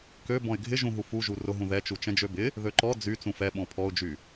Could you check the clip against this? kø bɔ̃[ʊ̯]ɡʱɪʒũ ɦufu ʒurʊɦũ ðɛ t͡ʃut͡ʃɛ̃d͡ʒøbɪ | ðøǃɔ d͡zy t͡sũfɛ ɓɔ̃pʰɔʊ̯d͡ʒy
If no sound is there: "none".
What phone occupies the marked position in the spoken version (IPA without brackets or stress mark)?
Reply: ɪ̯